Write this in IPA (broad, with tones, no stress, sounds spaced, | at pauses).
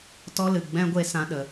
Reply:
t ɔ˦ l ɨ˨ ɡ͡b ɛ̃˧ ɡʷ e˧ s ã˧ ɗ ə˨